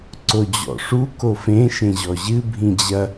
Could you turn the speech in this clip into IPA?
ǀ o d͡ʑ ɔ̰ ʂ u k o f ẽ ʃ ẽ ʑ ɔ ʑ ɨ bʱ ĩ d͡ʑ ɐ

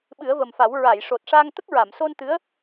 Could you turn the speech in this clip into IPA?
ɓ ɨ˨˩˦ ə̯ v ə˨˩ m f a˨˩˦ w ɹ a˨˩˨ j ʂ o˨˩ t̚ ʂ a˧ ŋ t̪ ə˦˥ k̚ ɹ a˨˩˨ m s o˧ n t̪ ɨ˧˥ ə̯

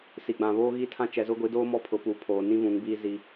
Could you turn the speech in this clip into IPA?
s i˨ ɡ͡b ã˨ β oː˦ ɣ i˦ tʰ ã˦ t͡ʃ ɛ˨ z ʊ˦ ɡʷ i˨˦ d oː˦ m ɔ˦ pʰ ʊ˨˦ p u˨ pʰ oː˨ n ĩ˦ v ũ˨˦ ŋ b iː˦ z i˦

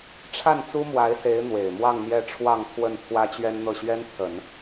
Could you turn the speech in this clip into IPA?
ʈ͡ʂʰ a˥˩ n t͡s u˥ m w a˧˥ ɪ̯ s e˧˥ ɪ̯ n̪ w e˨˩ ɪ̯ m w ɑ˥˧ ŋ n̪ j ɛ˥˧ ʈ͡ʂʰ w ɑ˥˧ ŋ pʰ w ə˥˩ n pʰ w ä˥ t͡ɕ ɥ ɛ˥ n n̪ ɤ˥˩ ɕ ɥ ɛ˥ n pʰ ə˨˩˦ n

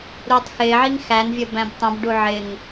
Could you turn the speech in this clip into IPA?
ɾ uː tˤ x ɪː ʕ i ŋ x æ n vʲ ə b æ̃ b tˤ ə̃ b ɖ u ʕ ɪ ŋ

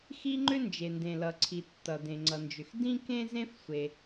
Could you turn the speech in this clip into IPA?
x i˥ ŋ͡ǃ ʏ˥ n d͡ʒ e˩ n d ẽ˩ l ʌ˩ ǀʰ i˩ tː ʌ˩ d ẽ˩ ŋ͡ǀ ʌ˩ n d͡ʒ ʏ˩ x d ĩ˥ k ẽ˥ z ẽ˥ f sʷ e˩

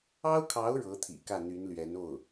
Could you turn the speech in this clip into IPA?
ɑ˥ ʊ̯ kʰ ɑ˧˥ ʊ̯ ɻ ɤ˧˥ t̪ʰ ḭ˨˩ k ä˥˩ n̪ y˧˥ n l ɥ ɛ˧˥ n o˥˩ ʊ̯

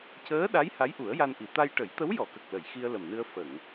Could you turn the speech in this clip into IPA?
c əː˧˥ ɗ a˧˥ j h a˧˥ j ʔ u˨˩˦ ə̯ j a˧ n ʔ i˨˩˦ t̪ a˧ j ʈ ə˨˩˦ j t̪ ə˧˥ w j ɔ˨˩˨ k ə˨˩ k̚ l ə˨˩˨ j x i˧ ə̯ l ə˨˩ m n ɨ˧ ə̯ f ə˨˩˨ ŋ

